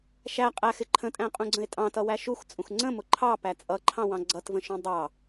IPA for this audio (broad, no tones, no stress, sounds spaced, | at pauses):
ʃ æ qʼ æ x ɪ ǃʰ ə̃ tʼ æ̃ qʼ ũ ɡ͡ǀ ə̃ e̯ tʼ ɑ̃ t ʌ w æ ʃ u x t͡sʼ ũ x ŋ͡ǀ ə̃ m ʊ ǃʰ ɑ p æ t͡sʼ ʌ ǃʰ ɑ̃ w ɑ̃ ɡ͡ǀ ʌ t v ə̃ ʃ ũ dˤ ɑ